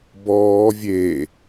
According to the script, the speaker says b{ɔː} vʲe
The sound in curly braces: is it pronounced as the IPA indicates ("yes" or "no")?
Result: yes